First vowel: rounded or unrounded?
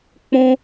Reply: rounded